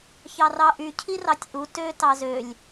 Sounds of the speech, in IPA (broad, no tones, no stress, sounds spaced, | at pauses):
ç ɑ r ɑ ʔ y cʰ i r ɑ tʲ ʔ u t ø t ɑ z ø lʲ